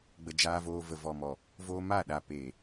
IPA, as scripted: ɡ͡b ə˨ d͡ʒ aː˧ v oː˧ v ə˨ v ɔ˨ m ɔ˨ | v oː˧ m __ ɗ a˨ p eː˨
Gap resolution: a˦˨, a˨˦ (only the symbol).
a˦˨